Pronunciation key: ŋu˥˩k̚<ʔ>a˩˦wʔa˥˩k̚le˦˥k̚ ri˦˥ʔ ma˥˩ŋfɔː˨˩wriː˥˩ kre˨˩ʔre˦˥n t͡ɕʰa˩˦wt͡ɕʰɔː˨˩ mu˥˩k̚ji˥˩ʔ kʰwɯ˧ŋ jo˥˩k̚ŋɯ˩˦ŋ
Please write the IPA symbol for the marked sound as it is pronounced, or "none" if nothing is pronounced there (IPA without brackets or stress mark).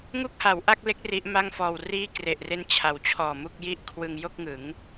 h